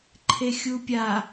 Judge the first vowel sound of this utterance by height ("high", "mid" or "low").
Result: mid